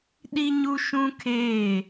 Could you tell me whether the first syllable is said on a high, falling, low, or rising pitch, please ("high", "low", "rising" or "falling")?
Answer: high